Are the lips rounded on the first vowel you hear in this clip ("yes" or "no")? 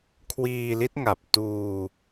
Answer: no